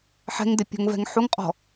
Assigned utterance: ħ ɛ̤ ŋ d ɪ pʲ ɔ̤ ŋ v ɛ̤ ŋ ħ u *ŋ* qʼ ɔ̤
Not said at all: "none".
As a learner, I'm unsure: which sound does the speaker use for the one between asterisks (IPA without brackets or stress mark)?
ŋ